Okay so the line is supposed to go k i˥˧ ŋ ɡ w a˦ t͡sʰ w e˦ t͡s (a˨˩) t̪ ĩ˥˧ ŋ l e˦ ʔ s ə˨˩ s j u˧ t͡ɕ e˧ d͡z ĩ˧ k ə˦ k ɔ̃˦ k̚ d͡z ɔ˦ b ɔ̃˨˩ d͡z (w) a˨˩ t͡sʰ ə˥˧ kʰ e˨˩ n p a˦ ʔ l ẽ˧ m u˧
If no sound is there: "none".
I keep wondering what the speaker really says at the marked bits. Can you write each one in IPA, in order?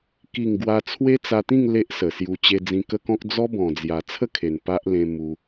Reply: a˧, j

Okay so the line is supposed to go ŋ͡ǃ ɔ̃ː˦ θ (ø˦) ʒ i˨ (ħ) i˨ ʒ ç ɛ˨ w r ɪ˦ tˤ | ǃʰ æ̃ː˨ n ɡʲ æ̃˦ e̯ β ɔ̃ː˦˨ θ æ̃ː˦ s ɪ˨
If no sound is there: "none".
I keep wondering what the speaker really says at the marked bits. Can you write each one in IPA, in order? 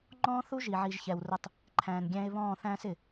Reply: u˦, ʕ

